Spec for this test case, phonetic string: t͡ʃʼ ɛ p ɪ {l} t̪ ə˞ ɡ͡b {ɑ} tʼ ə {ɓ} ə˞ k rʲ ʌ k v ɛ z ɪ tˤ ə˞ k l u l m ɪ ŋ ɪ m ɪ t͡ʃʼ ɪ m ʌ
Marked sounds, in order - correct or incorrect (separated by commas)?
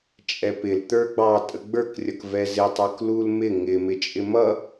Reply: correct, correct, incorrect